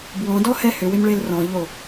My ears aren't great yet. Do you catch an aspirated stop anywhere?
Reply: no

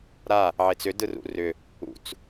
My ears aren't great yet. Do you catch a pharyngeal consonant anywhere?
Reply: yes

